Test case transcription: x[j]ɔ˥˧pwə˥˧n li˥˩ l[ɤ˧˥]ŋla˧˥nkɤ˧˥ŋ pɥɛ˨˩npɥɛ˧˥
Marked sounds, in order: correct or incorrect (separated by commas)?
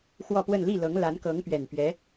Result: incorrect, correct